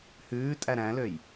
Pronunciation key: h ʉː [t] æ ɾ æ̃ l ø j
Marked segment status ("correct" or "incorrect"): incorrect